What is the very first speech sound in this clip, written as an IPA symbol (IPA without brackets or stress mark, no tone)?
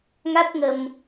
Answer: ŋ